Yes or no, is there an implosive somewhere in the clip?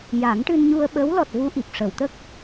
yes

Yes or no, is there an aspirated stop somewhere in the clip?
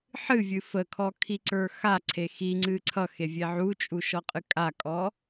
yes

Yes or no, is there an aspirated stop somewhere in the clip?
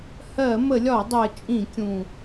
no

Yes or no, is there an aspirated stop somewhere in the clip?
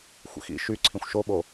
yes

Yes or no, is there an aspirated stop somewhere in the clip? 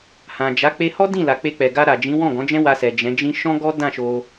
no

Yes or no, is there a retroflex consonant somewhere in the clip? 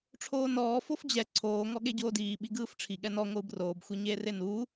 yes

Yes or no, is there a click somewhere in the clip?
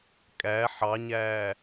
no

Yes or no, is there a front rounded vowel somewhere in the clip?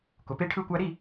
no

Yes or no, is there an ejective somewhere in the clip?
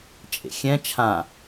yes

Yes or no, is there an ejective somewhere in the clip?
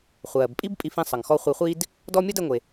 yes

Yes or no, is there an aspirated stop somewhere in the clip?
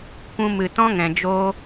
no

